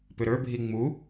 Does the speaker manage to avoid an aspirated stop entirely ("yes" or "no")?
yes